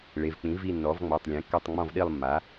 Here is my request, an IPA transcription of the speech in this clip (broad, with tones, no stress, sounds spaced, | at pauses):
ɭ e˩˧˩ v k͡p ĩ˩˥ v i˦˨ nː ɔ˩˥ v ŋ͡m ɔ˩˧˩ tˤ lʲ ẽ˩˥ kː ɔ˦˨ tˤ ŋ͡m ɔ̃˦˨ v ɗ i˦˨ lˠ mː a˩˥